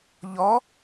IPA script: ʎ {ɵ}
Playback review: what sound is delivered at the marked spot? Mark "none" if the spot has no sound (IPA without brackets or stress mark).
ɔ